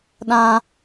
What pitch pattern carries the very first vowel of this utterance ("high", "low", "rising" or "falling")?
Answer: low